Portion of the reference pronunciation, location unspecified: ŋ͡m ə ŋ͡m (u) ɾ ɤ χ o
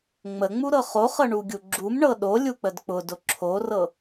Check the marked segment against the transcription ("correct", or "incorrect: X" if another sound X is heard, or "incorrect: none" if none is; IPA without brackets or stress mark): correct